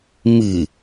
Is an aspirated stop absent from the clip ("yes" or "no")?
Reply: yes